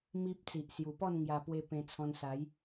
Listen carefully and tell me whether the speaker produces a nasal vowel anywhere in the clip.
yes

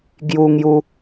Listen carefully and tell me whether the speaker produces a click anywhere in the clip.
no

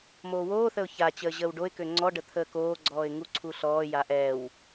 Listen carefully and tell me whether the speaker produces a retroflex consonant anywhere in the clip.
yes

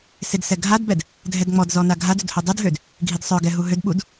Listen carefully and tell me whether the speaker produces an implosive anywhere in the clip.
yes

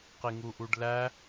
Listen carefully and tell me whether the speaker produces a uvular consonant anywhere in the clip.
yes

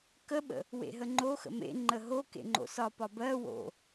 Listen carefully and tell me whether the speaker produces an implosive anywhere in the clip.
yes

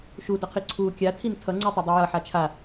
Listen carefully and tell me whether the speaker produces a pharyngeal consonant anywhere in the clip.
yes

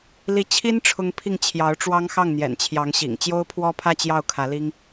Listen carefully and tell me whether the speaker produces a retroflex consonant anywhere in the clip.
yes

